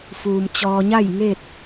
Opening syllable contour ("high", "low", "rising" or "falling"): low